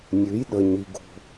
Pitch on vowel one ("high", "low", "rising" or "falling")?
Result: rising